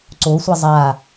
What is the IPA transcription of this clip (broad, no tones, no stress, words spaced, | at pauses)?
ǀosʷʌ zˤa